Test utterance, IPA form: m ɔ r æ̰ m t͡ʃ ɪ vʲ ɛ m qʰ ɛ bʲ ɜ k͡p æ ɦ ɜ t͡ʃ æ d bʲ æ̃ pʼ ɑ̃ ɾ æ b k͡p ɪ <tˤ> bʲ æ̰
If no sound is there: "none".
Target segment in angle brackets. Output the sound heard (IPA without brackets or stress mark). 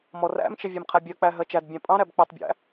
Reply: tˤ